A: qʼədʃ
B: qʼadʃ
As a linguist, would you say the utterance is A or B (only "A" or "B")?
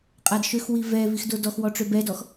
B